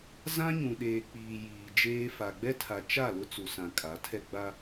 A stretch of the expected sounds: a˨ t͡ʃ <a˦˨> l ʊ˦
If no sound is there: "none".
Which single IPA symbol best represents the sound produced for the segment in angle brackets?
a˦˨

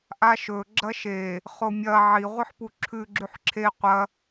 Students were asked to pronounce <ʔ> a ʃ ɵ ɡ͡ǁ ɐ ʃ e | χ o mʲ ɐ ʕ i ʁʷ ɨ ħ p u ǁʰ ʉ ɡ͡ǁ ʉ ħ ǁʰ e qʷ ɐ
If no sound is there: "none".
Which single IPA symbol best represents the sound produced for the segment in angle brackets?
ʔ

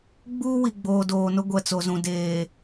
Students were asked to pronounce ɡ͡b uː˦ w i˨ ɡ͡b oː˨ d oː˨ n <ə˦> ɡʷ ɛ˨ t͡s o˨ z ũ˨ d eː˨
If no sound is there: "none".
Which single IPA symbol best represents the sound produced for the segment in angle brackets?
ʊ˦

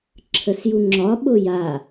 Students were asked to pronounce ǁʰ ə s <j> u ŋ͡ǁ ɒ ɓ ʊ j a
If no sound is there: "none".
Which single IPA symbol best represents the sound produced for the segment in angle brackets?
j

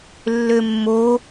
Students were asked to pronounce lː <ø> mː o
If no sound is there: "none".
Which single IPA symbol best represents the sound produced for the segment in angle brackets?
ø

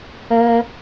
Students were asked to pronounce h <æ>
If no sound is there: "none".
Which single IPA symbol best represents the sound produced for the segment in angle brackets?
œ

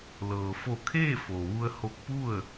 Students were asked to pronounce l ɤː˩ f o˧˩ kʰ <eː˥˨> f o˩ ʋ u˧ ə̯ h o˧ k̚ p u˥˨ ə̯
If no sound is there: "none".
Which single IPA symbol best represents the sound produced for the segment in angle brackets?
eː˥˨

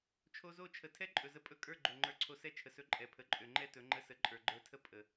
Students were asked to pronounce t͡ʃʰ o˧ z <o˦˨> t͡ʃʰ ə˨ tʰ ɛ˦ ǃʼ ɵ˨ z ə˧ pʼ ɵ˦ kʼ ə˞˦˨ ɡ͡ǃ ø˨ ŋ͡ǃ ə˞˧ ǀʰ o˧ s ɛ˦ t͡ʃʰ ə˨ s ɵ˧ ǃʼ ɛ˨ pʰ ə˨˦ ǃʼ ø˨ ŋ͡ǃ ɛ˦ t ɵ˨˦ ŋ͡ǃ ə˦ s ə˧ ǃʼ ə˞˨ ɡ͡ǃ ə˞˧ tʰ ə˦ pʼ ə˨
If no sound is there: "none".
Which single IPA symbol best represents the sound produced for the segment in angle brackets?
o˦˨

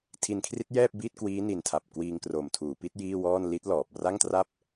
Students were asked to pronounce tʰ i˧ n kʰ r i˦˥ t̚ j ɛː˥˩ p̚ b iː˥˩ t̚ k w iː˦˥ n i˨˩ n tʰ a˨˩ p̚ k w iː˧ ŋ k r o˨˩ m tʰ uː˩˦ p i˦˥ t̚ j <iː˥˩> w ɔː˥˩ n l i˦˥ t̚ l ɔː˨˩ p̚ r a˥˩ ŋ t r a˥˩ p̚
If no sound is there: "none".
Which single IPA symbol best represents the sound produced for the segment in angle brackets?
iː˥˩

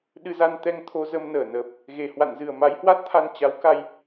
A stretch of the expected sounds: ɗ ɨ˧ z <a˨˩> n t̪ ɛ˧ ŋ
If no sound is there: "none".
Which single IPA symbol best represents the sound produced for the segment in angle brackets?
a˧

